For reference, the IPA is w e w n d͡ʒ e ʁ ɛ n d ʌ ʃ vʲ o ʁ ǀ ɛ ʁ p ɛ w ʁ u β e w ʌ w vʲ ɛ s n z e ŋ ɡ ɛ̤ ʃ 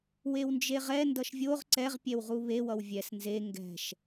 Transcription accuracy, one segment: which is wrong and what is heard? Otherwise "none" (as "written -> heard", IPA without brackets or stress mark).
p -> pʲ